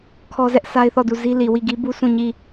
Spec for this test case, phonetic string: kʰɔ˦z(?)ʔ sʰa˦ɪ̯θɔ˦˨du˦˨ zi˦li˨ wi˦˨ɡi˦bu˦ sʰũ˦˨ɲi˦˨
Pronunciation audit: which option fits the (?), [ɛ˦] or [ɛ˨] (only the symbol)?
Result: ɛ˦